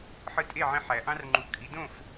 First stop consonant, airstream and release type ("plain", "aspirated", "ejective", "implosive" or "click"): ejective